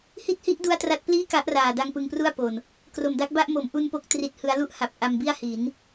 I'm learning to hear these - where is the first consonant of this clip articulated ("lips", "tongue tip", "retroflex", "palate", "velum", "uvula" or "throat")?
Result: throat